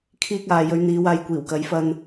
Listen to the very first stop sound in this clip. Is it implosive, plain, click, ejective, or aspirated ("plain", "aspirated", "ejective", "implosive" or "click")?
aspirated